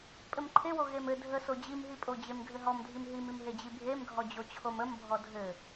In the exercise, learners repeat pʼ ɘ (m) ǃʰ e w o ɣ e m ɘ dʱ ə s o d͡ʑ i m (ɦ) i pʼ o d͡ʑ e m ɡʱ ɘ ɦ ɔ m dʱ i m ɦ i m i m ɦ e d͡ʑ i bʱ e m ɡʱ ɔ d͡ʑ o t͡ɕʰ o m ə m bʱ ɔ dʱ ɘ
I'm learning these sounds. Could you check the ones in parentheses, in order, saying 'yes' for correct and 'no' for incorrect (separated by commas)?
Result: yes, yes